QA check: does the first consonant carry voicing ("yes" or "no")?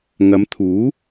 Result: yes